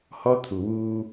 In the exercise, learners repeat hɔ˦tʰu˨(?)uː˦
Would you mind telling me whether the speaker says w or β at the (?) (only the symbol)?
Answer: w